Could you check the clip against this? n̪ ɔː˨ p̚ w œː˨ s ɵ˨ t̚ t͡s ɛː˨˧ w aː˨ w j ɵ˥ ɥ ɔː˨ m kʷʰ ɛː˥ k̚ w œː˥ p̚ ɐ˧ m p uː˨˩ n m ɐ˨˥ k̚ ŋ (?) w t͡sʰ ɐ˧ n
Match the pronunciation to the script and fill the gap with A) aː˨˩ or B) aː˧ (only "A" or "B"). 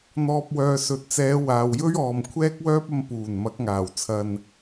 A